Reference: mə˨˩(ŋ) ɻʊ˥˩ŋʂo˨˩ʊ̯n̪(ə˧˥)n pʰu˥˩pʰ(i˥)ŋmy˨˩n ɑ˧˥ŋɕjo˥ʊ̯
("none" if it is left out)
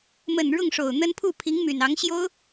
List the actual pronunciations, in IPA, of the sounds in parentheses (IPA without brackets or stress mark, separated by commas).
n, ə˥, i˧˥